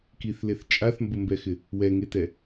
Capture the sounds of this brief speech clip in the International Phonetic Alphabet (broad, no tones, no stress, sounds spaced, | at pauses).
k i θ l e θ t͡ʃʼ a θ m b ʊ m b ɛ x ɪ | w ɛ ŋ e t ɛ